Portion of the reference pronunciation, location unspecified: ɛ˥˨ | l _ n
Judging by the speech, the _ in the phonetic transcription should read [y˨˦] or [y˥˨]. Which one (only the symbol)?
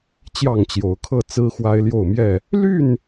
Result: y˥˨